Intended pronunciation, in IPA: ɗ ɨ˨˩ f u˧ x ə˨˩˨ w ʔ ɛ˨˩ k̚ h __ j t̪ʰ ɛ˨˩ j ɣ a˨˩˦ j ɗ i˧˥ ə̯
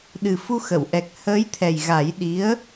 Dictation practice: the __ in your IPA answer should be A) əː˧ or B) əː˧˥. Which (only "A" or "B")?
B